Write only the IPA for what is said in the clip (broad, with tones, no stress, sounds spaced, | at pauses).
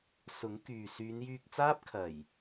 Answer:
s ʊ˨˥ ŋ k yː˨ s yː˨˧ n j yː˧ k̚ t͡s aː˥ p̚ kʰ ɐ˨˩ j